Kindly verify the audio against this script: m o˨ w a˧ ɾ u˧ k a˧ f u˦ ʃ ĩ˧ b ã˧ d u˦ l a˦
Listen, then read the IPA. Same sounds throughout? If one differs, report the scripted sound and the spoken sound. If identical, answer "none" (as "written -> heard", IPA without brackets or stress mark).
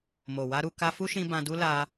none